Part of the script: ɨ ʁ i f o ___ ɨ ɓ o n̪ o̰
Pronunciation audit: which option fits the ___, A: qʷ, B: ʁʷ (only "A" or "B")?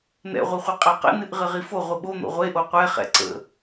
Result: B